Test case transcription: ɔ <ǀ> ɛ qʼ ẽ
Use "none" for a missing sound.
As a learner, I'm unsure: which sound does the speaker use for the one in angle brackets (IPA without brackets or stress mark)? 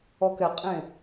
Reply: k